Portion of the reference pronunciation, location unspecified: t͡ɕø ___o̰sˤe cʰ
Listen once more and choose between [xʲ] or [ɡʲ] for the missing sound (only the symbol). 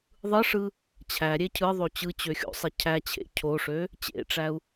xʲ